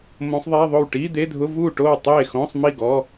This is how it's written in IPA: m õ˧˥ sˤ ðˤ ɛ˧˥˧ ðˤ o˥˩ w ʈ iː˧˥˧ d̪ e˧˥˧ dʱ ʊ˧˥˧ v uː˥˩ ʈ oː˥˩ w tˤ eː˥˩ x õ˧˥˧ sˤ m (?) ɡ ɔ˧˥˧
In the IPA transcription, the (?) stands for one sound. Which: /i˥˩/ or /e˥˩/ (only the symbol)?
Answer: i˥˩